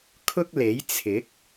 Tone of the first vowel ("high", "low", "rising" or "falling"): high